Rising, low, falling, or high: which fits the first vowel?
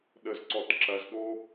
low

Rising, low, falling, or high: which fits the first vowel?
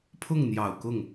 falling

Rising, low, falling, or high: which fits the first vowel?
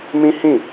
high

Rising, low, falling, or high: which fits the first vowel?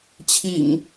low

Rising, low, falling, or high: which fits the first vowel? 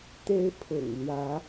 high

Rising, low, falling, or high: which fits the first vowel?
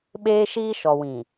high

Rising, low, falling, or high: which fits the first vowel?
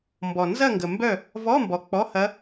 low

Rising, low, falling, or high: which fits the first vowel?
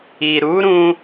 low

